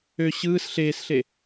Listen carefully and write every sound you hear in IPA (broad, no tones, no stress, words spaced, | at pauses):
ø ɕɯːs ɬeːsɬe